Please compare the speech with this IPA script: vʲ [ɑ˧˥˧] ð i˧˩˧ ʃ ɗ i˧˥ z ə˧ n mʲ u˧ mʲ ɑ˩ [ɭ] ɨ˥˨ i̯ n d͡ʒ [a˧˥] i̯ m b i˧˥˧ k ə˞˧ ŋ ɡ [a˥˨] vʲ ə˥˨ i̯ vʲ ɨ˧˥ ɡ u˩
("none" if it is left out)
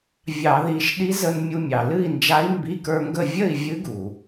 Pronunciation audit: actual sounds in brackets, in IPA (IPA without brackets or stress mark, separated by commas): ɑ˧˩˧, l, a˧˥, ə˥˨